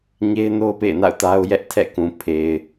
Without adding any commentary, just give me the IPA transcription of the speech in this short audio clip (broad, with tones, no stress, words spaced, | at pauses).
ɲe˦ɪ̯no˦ʊ̯ pḛ˦˨ɪ̯na̰˦˨ʊ̯ ta˦ʊ̯ jɛ˦ʔ tʰɛ̰˦˨kũ˨ pʰe˨ɪ̯